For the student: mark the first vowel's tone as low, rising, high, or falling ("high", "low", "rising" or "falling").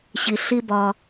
low